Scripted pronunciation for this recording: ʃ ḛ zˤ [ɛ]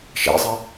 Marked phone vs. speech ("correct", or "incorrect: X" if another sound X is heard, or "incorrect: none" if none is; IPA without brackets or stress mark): correct